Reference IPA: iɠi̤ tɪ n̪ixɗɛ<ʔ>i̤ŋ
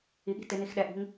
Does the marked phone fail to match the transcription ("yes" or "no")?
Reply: no